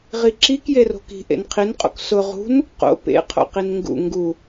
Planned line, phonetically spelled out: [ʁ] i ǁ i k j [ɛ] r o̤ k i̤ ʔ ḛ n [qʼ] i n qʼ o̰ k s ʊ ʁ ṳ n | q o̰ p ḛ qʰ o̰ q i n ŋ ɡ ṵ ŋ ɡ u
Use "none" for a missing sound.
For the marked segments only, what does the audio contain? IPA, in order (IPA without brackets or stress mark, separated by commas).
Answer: ʁ, e, qʰ